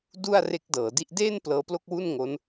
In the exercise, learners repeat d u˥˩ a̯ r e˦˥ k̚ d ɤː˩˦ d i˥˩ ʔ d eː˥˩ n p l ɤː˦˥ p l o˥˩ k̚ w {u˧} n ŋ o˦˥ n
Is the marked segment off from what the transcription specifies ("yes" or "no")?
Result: yes